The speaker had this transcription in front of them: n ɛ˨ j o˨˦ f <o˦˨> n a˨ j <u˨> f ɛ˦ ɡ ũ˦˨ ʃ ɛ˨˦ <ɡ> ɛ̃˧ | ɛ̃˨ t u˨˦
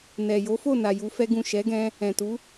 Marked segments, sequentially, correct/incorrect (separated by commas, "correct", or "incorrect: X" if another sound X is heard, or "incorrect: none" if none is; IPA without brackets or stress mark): correct, incorrect: u˧, correct